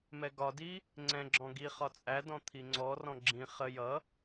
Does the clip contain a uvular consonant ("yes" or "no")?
yes